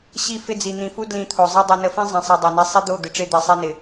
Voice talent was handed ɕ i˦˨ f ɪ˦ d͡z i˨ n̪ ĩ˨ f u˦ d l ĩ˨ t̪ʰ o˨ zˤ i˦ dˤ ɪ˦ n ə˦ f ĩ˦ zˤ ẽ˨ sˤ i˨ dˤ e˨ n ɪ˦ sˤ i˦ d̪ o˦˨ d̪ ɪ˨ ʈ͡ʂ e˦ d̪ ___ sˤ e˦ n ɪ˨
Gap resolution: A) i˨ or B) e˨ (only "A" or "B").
B